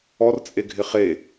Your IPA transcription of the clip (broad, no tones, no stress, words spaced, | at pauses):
ɔrt͡sʼeɡʱɪ χe